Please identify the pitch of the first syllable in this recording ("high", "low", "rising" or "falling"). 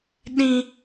high